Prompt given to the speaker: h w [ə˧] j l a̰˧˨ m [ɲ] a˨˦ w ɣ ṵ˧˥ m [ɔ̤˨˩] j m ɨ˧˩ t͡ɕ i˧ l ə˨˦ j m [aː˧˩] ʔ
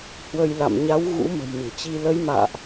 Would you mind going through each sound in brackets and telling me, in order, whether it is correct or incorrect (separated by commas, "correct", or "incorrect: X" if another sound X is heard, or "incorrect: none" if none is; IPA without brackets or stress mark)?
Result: correct, correct, incorrect: ə̤˨˩, incorrect: a̰ː˧˨